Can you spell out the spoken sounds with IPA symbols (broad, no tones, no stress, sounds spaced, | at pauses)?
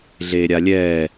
ɮ eː ɾʲ a lʲ ɛː